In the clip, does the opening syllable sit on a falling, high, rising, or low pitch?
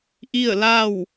falling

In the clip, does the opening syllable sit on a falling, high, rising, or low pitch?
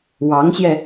rising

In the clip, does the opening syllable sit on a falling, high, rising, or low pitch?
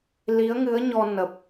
rising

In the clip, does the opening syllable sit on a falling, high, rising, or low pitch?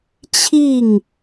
falling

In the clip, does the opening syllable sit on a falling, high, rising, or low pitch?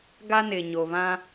high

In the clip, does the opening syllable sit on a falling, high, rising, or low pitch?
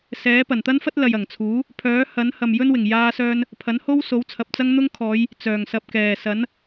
rising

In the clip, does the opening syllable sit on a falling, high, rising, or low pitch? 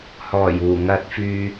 low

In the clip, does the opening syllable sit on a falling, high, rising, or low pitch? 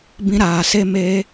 high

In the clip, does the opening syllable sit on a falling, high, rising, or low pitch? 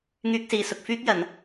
high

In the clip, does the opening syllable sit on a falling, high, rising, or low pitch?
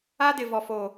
high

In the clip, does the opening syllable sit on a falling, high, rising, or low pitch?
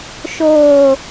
low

